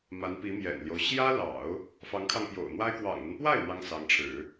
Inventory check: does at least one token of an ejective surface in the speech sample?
no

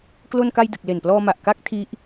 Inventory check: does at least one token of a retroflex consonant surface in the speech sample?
no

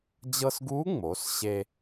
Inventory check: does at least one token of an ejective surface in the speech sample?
no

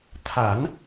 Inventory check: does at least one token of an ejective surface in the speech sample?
no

